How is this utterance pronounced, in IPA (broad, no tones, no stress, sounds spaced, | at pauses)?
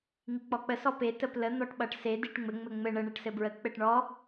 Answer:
ŋ i k͡p ɔ k͡p ə s ɔ p e t ə p l ə n̪ ɔ ʈ ɓ ʌ ʈ s e d i ʈ ŋ͡m ɘ ŋ͡m ɘ ŋ͡m ɘ ɳ ə ɳ e ʈ s ɘ b ɹ ə k͡p ɘ ʈ ɳ ɔ